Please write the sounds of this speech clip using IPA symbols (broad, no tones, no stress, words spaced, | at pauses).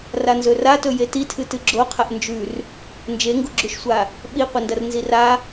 ranzɵratɵ jetitʰɨtɨ ɡ͡ǁoqʰɐʔ nd͡ʒʉr | nd͡ʒeŋɡuɡ͡ǁʉʃsʷa | ɓiqʷɐndɐr nzira